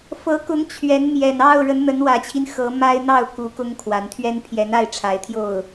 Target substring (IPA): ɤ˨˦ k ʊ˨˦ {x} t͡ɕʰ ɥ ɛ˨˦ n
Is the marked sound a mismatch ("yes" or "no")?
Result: yes